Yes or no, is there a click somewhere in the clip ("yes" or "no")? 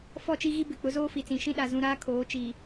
no